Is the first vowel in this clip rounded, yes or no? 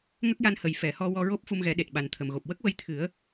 no